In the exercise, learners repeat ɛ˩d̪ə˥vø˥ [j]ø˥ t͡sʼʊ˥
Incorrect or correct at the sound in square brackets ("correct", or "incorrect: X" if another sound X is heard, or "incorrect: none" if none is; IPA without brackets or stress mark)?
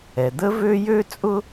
correct